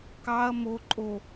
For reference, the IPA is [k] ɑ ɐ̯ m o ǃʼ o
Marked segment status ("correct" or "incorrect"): correct